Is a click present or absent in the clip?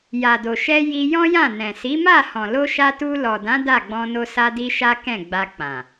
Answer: absent